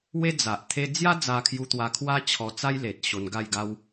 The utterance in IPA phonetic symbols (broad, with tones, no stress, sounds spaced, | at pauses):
w e˦ d͡z a˨ ʔ t̪ʰ e˧ d͡z j a˦ d͡z a˧ kʰ j u˧ t̪ w a˧ kʰ w a˦ t͡ɕʰ ɔ˧ t͡s a˦ j l e˨ t̚ ɕ o˧ n ɡ a˥˧ j ɡ a˦ w